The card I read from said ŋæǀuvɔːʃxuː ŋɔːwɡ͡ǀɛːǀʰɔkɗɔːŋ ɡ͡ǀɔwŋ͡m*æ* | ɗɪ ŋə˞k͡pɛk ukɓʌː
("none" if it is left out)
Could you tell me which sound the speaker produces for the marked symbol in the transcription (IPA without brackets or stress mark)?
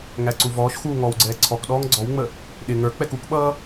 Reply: ə